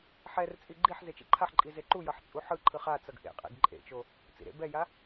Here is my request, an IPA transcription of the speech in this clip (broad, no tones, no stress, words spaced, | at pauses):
ħɛrt͡sʼi ɡ͡ǃiħ zet͡ʃḭǃʰaħǃʼi zeǃujʌħ t͡sʼuħɯǃʰɯ χat͡sʌɡ ʔḛqʼḛɡ ǃʼḛt͡ʃo | t͡sḭɾḛbɛja